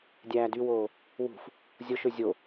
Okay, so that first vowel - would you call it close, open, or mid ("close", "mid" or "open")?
open